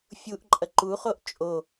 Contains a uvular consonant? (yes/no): yes